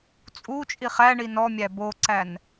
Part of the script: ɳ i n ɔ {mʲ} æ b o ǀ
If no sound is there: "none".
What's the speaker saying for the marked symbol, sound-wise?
mʲ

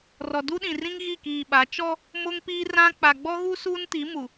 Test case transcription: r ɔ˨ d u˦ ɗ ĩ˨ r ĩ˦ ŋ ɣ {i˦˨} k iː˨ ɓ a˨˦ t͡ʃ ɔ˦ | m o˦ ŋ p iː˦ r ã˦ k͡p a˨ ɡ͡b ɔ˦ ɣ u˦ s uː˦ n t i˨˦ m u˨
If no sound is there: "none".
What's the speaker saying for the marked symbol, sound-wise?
i˦˨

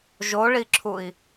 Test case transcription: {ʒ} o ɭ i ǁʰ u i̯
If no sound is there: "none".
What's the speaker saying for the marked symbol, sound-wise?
ʒ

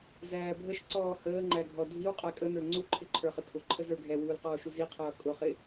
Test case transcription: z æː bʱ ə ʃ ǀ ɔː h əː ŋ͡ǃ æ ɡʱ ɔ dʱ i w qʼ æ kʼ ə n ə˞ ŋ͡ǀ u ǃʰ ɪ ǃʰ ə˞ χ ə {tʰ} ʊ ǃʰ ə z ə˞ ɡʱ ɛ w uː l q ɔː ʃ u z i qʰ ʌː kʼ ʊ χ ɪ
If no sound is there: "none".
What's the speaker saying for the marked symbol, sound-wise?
tʰ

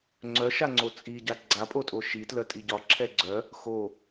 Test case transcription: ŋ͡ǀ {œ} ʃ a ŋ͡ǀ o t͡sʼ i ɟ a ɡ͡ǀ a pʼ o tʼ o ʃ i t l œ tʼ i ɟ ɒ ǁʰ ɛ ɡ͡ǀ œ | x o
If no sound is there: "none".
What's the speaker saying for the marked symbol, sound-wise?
œ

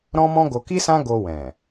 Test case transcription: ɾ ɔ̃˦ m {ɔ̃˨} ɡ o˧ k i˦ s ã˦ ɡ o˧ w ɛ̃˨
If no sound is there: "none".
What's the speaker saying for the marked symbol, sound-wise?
ɔ̃˦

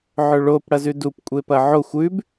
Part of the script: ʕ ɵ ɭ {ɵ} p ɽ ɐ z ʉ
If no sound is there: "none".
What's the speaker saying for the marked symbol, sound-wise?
o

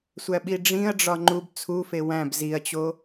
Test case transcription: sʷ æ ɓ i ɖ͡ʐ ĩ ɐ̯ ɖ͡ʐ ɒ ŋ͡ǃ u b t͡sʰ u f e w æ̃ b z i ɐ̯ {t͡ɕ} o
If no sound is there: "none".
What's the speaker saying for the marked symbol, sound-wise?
t͡ɕ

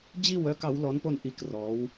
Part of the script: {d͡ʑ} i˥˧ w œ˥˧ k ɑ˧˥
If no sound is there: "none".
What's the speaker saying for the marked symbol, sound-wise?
d͡ʑ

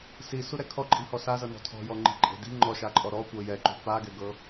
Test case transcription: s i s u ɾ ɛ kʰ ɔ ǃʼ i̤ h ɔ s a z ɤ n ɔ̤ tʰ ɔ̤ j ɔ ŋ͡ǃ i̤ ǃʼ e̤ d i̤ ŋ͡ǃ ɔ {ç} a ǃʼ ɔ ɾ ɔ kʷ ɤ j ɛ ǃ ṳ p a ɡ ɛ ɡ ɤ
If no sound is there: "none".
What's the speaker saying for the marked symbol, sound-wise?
ʃ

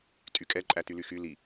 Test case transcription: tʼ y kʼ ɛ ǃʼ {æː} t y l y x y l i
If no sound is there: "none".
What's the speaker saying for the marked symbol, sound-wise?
æ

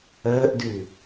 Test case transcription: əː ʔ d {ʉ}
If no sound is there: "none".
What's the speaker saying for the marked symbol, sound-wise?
ʉ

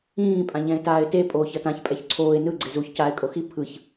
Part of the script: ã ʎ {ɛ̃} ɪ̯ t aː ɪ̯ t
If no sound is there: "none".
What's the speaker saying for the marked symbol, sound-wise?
ɛ̃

